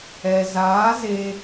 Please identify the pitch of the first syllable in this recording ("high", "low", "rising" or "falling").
low